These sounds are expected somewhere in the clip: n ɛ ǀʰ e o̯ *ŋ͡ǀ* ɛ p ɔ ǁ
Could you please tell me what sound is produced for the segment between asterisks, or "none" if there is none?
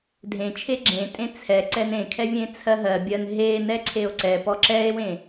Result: ǀ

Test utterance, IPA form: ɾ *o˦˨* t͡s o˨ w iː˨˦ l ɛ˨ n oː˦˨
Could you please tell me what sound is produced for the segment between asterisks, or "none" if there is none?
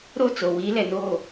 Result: o˦˨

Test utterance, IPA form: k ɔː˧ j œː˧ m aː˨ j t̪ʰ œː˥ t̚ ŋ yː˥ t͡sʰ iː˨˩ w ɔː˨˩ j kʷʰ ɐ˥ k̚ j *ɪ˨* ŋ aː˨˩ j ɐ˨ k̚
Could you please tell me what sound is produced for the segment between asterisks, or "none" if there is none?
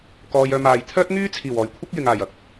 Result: ɪ˨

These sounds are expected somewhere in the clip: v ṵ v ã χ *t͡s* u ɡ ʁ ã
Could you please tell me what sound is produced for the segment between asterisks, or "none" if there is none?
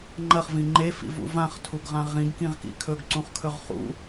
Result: tʰ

